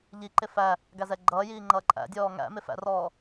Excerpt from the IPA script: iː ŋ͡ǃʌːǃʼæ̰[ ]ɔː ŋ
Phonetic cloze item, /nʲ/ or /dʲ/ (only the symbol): dʲ